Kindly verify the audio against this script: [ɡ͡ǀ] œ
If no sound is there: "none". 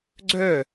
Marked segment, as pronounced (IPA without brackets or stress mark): ɡ͡ǀ